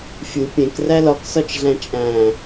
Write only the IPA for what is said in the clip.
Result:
fʲ u pʲ ẽ k r æ l ɒ k s ɒ t͡ʃ ɮ æ̃ t͡ʃʼ æ̃

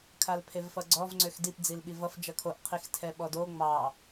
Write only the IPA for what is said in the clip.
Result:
kʰ a l pʰ e v f ʌ ɡ͡ǀ ɔ v ŋ͡ǀ ø x d i p d͡z i l ɓ i v ʌ f d͡ʒ ʌ kʰ o ʔ qʰ i x tʰ ɛ ɓ ɔ d o ŋ͡m ɑ

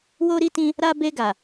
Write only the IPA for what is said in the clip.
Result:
w o˧ ɾ i˧ t ĩ˧ | ɾ a˧ b e˧ ɡ a˨

